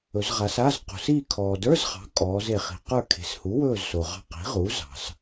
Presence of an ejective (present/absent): present